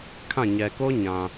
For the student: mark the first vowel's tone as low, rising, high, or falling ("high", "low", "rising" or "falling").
falling